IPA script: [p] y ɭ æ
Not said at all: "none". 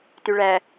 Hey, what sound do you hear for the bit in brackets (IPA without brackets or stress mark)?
t